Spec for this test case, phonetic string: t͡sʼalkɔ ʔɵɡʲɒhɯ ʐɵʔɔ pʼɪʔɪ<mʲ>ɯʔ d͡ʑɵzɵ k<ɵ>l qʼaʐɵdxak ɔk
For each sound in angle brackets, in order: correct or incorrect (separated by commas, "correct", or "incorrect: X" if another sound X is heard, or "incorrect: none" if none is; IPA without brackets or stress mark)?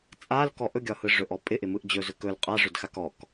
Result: incorrect: m, correct